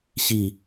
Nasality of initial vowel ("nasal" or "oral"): oral